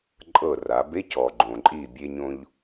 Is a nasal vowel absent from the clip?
no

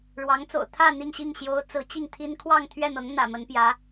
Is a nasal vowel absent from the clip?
yes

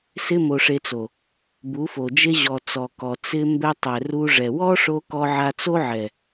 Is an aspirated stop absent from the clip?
yes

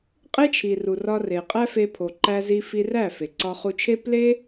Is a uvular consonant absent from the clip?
no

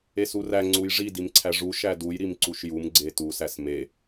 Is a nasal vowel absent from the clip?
yes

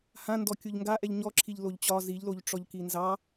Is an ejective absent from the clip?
yes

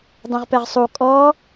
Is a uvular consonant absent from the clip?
no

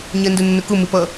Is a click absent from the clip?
yes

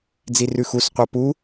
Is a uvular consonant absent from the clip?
no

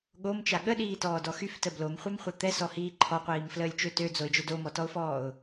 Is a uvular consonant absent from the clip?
no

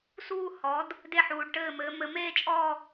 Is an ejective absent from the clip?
no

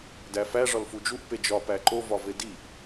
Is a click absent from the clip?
no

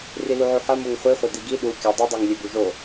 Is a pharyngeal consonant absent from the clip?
no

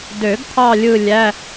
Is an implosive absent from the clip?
yes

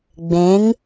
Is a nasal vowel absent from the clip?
no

